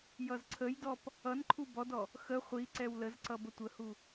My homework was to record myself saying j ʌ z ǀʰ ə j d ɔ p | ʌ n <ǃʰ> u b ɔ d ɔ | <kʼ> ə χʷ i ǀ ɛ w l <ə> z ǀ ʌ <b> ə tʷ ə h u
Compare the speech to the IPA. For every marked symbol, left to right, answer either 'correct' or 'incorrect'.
correct, incorrect: x, correct, correct

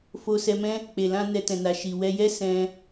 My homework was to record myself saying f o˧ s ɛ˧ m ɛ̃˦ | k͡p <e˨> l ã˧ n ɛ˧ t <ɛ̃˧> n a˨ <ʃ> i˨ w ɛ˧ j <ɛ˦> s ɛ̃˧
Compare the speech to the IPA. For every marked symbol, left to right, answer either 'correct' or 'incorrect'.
correct, incorrect: ɛ̃˨, correct, correct

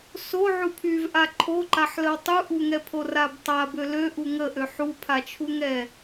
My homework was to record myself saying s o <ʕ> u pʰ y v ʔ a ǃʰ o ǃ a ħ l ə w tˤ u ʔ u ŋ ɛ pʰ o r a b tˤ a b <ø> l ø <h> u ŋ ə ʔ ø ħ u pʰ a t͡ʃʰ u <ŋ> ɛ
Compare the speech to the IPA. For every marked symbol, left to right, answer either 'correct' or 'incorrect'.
correct, correct, incorrect: ʔ, correct

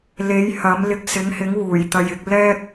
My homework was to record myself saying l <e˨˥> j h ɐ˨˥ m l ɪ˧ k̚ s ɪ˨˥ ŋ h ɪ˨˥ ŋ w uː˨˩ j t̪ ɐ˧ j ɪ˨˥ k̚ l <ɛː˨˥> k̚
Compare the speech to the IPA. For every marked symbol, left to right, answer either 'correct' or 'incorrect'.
correct, incorrect: ɛː˥

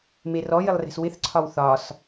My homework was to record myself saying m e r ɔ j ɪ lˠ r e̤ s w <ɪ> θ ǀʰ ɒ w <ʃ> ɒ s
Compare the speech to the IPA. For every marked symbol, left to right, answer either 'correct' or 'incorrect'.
correct, incorrect: θ

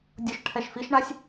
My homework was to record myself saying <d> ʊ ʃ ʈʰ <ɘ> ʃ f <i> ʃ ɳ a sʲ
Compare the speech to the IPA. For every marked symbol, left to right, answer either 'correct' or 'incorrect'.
incorrect: dʲ, incorrect: ɛ, correct

